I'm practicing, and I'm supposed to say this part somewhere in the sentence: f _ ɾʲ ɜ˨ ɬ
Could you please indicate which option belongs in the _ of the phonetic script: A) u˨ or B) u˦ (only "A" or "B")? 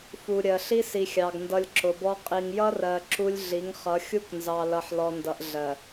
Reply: A